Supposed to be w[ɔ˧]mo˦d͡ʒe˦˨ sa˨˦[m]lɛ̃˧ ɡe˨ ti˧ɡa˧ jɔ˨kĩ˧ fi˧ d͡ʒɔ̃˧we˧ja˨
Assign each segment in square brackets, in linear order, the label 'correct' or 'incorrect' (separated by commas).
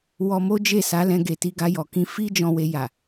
correct, incorrect